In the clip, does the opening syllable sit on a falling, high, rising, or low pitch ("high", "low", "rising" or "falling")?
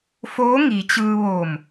rising